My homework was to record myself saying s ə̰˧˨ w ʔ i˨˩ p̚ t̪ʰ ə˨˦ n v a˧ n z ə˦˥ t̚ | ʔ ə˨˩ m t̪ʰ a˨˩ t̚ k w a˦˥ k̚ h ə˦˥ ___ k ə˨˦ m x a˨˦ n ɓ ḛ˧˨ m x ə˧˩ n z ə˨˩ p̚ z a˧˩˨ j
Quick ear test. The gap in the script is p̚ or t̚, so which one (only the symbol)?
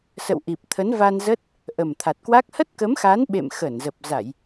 t̚